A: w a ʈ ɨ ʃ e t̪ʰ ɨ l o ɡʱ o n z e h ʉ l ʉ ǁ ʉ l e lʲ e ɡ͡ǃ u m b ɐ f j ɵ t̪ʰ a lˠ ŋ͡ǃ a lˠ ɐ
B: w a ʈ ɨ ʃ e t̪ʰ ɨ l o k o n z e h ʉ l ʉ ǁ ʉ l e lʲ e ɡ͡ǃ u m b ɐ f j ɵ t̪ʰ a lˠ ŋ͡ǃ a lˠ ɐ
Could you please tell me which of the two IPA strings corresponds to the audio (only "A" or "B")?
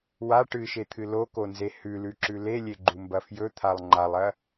B